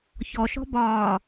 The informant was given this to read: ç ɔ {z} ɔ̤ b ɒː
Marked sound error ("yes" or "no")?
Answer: yes